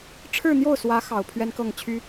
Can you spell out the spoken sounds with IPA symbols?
ʈ͡ʂʰ ɻ̩˥˧ n̪ j o˥˩ ʊ̯ s w ä˧˥ x ɑ˨˩ ʊ̯ pʰ ɥ ɛ˥ n k ɤ˥˩ ŋ t͡ɕʰ y˥

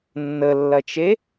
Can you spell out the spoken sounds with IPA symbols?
nː ə lː ɐ t͡ʃ e

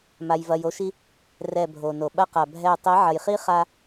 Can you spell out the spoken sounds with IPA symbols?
m a˧ j v ɐ˧ j o˦ ʃ i˦ | r ɛ˦˨ bʱ o˨ n o˨ ɓ ɐ˦ q a˨ bʱ ɛ˦˨ tˤ i˨˦ ʕ ɐ˨ j χ i˦ χ a˧

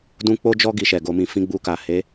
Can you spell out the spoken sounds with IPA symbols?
d ũ˦ k͡p o˦ d͡ʒ ɔ˦ ɡ i˧ ʃ ɛ˨ ɡ o˧ m ĩ˧ f ĩ˧ ɡ͡b u˧ k a˨ h e˨˦

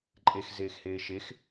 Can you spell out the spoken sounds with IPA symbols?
ǃʼ e x z eː x h eː ʃ e x

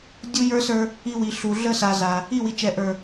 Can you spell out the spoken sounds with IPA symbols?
dʲ u˦ j ə˞˦ s ə˞˦ | i˦ w i˨ ɬ u˨ ɮ ə˦ s a˨ z a˨ | i˦˨ w i˨ t͡ʃ ɛ˨ ʔ ə˞˨

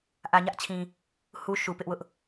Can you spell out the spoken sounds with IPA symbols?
ʔ ä˨ ɲ ä˦ ʔ t͡ɕʰ ĩ˨ | h u˦ ʃ u˨ p ɪ˦ ʔ w ʊ˦ ʔ

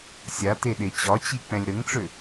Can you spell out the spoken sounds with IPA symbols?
sʲ a t e ɗ e t͡ɕ ɒ t͡ɕ i k͡p ɛ̃ lʲ ɾ ə ŋ ʈ͡ʂ ø

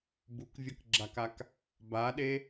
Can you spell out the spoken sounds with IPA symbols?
b u k vʲ ʌ k ɡ͡ǁ a k a k | b a ɗ e

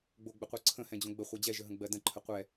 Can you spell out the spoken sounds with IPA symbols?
ɡ͡b o ɡ͡b ə qʷ ɤ ǀʰ ə̃ h ɛ̃ d͡ʑ õ ɡ͡b ə χʷ ə˞ d͡ʑ ɛ ʒ ə ɦ ə̃ ɡ͡b ɜ d ə̃ ǃʰ ə qʷ ɛ

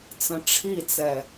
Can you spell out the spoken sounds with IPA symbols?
t͡s ə̃ ʈ͡ʂʰ i t͡s ɛ

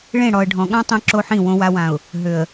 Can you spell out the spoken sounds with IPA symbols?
ɭ ẽ˦˨ ɽ ɔ˨ ə̯ ɖʱ ɔ̃˨ ɠ ã˦ tˤ ẽ˦ ǁ o˦ ħ ĩ˦˨ w õ˨ w a˨ w ã˨ ʊ̯ | ɦ ø˨ ə̯

